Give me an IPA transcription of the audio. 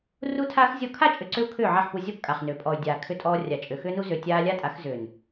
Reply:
r u˦ tʰ aː˦ x zʲ ɔ˦˨ kʰ a˦˨ t͡ʃʼ ʏ˨ ǀ ʏ˧ u̯ kʰ ʏː˦˨ ʕ a˦˨ ħ p u˧ zʲ ɔ˦˨ p kʼ a˨ χ n ʏː˨ pʼ ɔ˨ y̯ dʲ aː˨ kʰ ʏ˧ tʼ ɔː˧ rʲ a˨ t͡ʃʼ ʏ˨ x ʏː˦ n u˦ z ʏː˨ tʲ aː˧ lʲ a˦ tʼ a˨˦ x z ʏː˨ n

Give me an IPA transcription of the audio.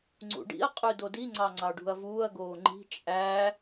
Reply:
ŋ͡ǀ ṵ ɖ ḭ ɐ̯ qʼ y d o d i ŋ͡ǀ ɑ ŋ͡ǀ ɑ ɖ ṳ ɐ̯ v uː ɐ̯ ɡ oː ŋ͡ǃ i̤ t͡ʃʼ æ

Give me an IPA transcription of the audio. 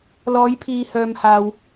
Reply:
l ɔː˨˧ j pʰ iː˨ h œː˨ m h aː˨ w

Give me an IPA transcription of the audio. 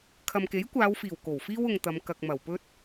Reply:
kʰ ɐ˨ m k e˨˥ j kʷ aː˨˧ w f iː˨˩ w k o˨˩ w f iː˥ w ʊ˧ ŋ t̪ ɐ˨˧ m k ɐ˨ k̚ m ɐ˨˩ w p ɵ˥ t̚

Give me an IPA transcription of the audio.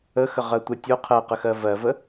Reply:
ə x ə ʁ ɜ tʷ ə tʲ o qʰ ɜ q ə x ɜ v ɜ v ə

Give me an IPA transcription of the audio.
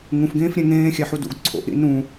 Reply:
ŋ ũ f ɡ ẽː f ɾʲ ẽ ŋ ẽː xʲ æ ħ u d ṵ ɡ ǀʰ o̰ ʔ ɾ ḭ n ũ

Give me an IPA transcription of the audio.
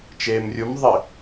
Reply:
t͡ʃ eː m rʲ u m ðˤ ɘ

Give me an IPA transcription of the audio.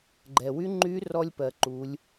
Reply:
ɡ͡ǃ ɛ˩ w y˧˥ ŋ͡ǃ y˧˥ r ɔ˥ lʲ p ɜ˧ ǃ u˧˥ lʲ

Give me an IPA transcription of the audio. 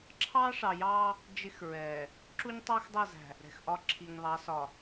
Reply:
ǁʰ ɑː˦ ʂ ɑ˨ j ɑː˦ | d͡ʒ ɪ˦ x ɹ ɛː˨ | ǁ u˦ ɲ tˤ ɑ˦ x dˤ ʌ˦˨ z æ̤˨ | ɾ ɛ̤˨ x ʔ ɒ˦ ǁʰ i˨ ɲ ðˤ ɑ˨˦ s ɒ˨

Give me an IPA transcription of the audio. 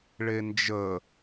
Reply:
ɭ e n d͡ʒ ə

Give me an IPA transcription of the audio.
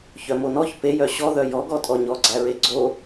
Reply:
ç œ m o n ɔ ç p e j œ ɕ ɔ ð œ j ɔ ɡ ɔ tʼ ɔ ɲ ɔ ɡ͡ǀ æ ɹ e ɡ͡ǀ o

